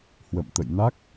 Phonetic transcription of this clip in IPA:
h w ə̰˧˨ m t̪ ə̰˧˨ j n a˦˥ k̚

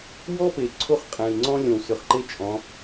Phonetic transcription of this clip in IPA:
w ɔ˥ p e˨ ǀʰ o˥ χ qʼ ɛ̃˨ i̯ ŋ͡ǀ ɔ̃˥ lʲ õ˨ w s ʏ˨ χ ǃ e˥ t͡ʃʼ ɔ̃˨˦

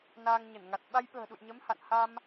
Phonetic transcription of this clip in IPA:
n aː˧ ŋ ɲ ə˧˩ n ŋ a˨˩ t̚ ɓ a˧ j ɓ ə̤ː˨˩ ɗ ṵ˧˨ j ɲ ə˨˦ m h a̰˧˨ n h a˧ m

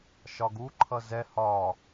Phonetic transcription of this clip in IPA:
ʃ ɒ ɡ u ǃʰ ʌ z ɛ h ɒ

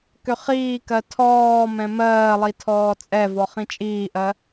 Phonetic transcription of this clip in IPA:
k ʏ χ iː k ɜ tʰ ɔː m ɛ̃ m ɜː lˠ i tʰ ɔː t͡sʼ ɛ v ɔ χ ĩ t͡ʃʼ iː ʔ ɜ

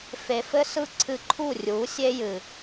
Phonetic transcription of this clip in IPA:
f e˨ f ɘ˦ s ɯ˦ ǀʰ ɨ˧ ǃʰ u˦˨ rʲ u˨˦ sʲ e˦ j ɨ˨

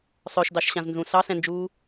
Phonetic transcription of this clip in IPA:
sˤ œ ʃ d ɑ ʃ ɕ ã z n z ũ s ɑ s ɛ̃ n d͡ʒ uː

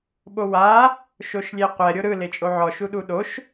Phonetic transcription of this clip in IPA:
ɓ o w a | ʃ o ʃ lʲ e qʷ ɛ ɾʲ o ɾ ɯ l e t͡ʃʼ o ʕ ɔ ʃ u ɗ u ɗ o ʃ

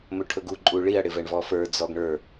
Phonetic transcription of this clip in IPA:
m ɵ ʈʰ ɵ ɡ u ǃʼ u ɭ i ɐ̯ ɽ ɪ v ɛ ɳ v ɔ f ə˞ d͡z ɔ ɡ ɳ ə˞

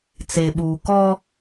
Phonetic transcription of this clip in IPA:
t͡s e˨ ɓ uː˨ k ɔ˦

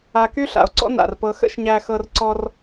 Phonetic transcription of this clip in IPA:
a˧ k y˦ ɬ a̰˨ o̯ ǀ ɔ̰˦ n a̰˨ r p ɤ˧ x ə̰˦ ʃ ɲ æ˧ x ɤ˧ r ǀ ɔ˧ r

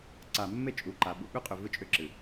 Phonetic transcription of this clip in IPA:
ǀ a˨ mː e˦˨ t͡ʃʼ u˨ ǃ a˨ ɓ ṵ˨ ɓ ʏ˦ qʼ ʏ˨ v ɯ˦ t͡ʃʼ ʏ˦ ǁ ɨ˨

